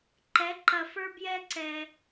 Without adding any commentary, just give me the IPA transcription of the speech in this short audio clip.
ǃɛ˧˥ǃɐ˧fə˞˥ bjɛ˥ǀɛ˧

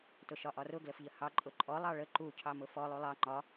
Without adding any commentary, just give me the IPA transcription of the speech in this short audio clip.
tʊʃɒʔɒrʊ ɡləfʎəhɑ ǃʼʊǃʼɔ lˠɑɭə ǃu cʰɑmʊfɔ lˠulˠɑ ŋ͡ǃɒ

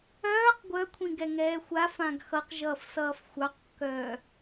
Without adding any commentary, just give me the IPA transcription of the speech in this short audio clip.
œːq ɡʷœkʷʰĩ ɡɛŋɛːxʷa fãɡxʌqʒʌːfsʌːf xʷɑqkːœː

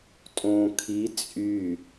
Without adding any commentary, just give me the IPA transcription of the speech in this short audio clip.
tʼõːkʰi t͡sʼy

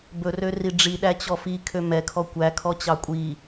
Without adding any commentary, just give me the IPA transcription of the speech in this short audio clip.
bɵrø riɖ͡ʐiɗæ t͡ɕɔfi kʰømɛkʰɔ kʷækʰɔt͡ɕɑ kʷʼi

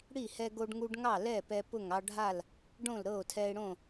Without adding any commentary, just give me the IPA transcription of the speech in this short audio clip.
ɽi˥˨hɛ˦ɡo˦ɖŋu˦ɖ ŋɑ˥˨lɛ˥˨ pɛ˦pʊ˥˨ŋ ɑ˦ɖʱa˥˨l | ɖõ˥˨l ɾɤ˥˨o̯tʰɛ˦e̯ɽõ˥˨

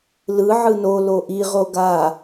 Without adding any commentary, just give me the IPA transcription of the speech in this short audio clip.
lɯ ʕɯno loʔi ʁoɡa

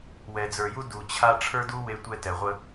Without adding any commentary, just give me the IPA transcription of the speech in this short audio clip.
wɛ˨d͡zə˞˨ju˦ du˨t͡ɕʰa˧ ʈ͡ʂʰə˞˦du˦ we˧tʷɛ˧tɛ˨ ʁʷə˧

